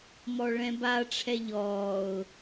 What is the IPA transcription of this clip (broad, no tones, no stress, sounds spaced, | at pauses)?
m ɔ ɭ ɛ̃ b a ʈ͡ʂʰ ɛ ʎ ɔː ʊ̯